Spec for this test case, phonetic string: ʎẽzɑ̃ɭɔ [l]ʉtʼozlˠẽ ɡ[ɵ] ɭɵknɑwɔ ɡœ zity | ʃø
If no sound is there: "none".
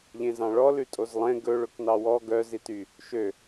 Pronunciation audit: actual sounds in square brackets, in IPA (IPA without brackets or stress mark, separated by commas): l, ɵ